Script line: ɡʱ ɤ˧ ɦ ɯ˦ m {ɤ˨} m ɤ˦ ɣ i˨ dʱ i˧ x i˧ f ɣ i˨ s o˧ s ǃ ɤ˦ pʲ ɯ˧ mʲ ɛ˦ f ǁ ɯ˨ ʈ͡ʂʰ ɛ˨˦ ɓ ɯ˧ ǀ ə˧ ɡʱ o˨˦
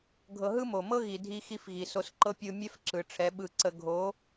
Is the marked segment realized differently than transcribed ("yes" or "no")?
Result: yes